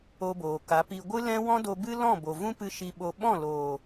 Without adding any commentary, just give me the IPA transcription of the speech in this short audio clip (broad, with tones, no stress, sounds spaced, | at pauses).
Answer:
o˧ b oː˨ k a˨˦ p i˧ ɡʷ ɨ˦ l ɛ̃˦ w ɔ̃˦ d o˧ b ɨ˦ l ɔ̃˦˨ b o˨ v ũ˦ p ɨ˧ ʃ i˧ ɓ o˧ ɓ ɔ̃˦˨ l oː˨